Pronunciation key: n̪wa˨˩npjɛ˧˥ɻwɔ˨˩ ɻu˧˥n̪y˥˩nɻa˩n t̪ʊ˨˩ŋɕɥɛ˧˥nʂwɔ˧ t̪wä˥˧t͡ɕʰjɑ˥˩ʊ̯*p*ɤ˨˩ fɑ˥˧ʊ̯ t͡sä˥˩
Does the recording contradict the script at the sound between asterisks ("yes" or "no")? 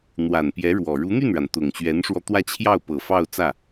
no